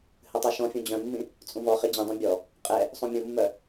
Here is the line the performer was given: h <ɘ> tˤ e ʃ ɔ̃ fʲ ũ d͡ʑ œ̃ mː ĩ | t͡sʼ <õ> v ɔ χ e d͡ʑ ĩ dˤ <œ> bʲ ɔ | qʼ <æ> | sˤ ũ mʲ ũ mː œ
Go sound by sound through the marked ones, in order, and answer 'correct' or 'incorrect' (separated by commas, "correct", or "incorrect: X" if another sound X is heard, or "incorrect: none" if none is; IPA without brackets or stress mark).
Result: correct, incorrect: ũ, incorrect: œ̃, incorrect: ɛ